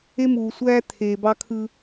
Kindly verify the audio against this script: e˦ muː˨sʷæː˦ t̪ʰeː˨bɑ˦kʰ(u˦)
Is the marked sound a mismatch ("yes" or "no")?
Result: yes